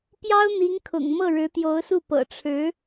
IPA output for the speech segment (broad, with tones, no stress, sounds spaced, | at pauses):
p j ɑ˥ ʊ̯ n̪ i˧˥ ŋ kʰ ʊ̰˨˩ ŋ m ɤ˥˩ ɻ ɻ̩˧˥ t̪ j o˧˥ ʊ̯ s u˥˩ p ɤ̰˨˩ ʈ͡ʂʰ ɻ̩˧˥